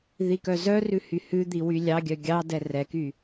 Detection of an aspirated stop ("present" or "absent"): absent